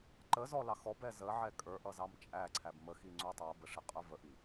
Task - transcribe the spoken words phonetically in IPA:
ǃ ə z ɔ l ɑ x ɔ b ɛ z ə ʕ ɛ kʼ ə˞ ʔ ʌ z ɑ m t͡ʃʼ æ ǀʰ æ b m ə x i ŋ͡ǀ u tˤ ə˞ b ə ʂ ɪ qʼ ə˞ v ə ʔ i

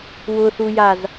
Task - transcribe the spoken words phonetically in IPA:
w ʊ θ u j a z

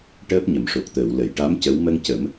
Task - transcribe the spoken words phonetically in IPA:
ʈ əː˦˥ p̚ ɲ ə˨˩˨ m ʂ o˨˩ k̚ t̪ əː˨˩˨ w l ə˨˩˨ j ʈ a˧˥ m c ə˧˥ w m ə˧ ŋ c ə˨˩˦ m

